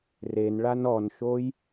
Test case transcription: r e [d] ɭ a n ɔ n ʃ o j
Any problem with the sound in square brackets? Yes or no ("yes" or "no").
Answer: yes